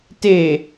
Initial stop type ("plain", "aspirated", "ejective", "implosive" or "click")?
plain